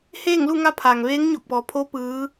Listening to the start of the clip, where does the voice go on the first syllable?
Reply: falling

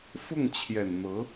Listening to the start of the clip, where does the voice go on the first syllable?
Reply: falling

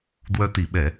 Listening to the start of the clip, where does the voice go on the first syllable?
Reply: high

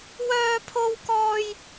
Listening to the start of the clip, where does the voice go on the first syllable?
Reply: high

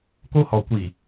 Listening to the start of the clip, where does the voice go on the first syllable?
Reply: high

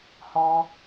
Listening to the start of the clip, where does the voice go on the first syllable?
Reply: high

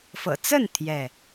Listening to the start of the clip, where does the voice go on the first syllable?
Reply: low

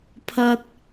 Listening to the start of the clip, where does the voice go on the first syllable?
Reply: high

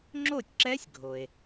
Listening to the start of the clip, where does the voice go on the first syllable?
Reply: falling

